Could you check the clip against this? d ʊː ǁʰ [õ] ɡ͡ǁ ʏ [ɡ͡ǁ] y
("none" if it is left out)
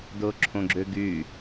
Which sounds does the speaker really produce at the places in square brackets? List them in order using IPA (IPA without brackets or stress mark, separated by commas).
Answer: õ, ɡ